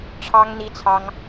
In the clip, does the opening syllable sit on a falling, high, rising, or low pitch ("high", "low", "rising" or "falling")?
high